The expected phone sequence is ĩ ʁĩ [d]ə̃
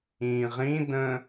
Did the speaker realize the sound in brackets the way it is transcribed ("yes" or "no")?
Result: yes